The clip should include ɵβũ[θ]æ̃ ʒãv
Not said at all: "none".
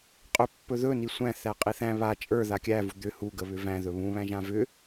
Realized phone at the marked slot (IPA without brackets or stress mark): β